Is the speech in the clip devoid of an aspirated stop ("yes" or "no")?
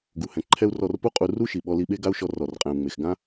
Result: no